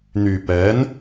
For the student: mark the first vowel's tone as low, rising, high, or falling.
low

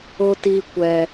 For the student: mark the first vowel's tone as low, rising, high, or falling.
high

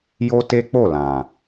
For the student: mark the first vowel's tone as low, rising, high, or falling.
high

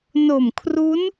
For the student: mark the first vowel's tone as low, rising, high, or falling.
low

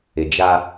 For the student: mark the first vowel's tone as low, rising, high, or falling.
low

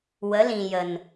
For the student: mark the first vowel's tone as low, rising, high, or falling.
rising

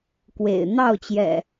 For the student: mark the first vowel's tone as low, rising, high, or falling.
low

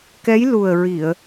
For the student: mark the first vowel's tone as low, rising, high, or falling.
rising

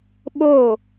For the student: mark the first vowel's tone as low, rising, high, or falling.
falling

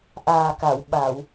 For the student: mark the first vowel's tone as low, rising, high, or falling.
low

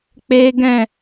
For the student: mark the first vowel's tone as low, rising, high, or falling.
high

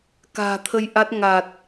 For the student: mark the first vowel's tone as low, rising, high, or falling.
low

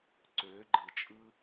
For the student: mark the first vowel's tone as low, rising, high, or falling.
rising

